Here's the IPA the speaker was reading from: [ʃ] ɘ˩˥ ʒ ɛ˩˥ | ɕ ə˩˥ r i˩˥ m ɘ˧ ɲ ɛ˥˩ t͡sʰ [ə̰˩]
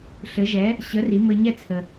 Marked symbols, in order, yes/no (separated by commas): no, no